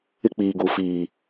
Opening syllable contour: high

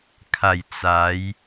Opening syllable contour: low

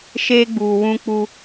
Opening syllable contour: high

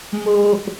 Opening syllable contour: low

